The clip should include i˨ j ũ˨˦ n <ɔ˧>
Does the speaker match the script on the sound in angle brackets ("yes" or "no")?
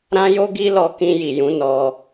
yes